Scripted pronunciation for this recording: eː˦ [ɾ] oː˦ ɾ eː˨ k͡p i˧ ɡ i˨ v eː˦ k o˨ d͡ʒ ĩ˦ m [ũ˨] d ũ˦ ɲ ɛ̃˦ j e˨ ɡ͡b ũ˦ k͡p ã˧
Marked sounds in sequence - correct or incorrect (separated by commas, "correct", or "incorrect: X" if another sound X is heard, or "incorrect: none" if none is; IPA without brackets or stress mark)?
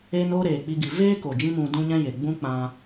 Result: incorrect: n, incorrect: ũ˧